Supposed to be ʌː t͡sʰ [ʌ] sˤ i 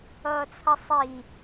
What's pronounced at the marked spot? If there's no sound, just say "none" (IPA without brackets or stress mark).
ʌ